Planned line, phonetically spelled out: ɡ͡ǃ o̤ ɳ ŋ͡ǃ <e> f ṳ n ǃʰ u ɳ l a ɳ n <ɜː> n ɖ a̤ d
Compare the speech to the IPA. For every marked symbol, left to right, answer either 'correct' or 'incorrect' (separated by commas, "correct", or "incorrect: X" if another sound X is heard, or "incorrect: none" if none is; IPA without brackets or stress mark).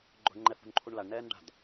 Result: incorrect: ɛ, incorrect: ɛː